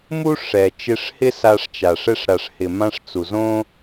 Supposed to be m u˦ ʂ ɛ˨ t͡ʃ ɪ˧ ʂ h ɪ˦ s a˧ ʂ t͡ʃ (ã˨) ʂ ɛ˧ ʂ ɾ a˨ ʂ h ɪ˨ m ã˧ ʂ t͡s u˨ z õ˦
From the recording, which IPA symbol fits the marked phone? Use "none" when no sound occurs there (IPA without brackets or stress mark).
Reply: a˨